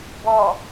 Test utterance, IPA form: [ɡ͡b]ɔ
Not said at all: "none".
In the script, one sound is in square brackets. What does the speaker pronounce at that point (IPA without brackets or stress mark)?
b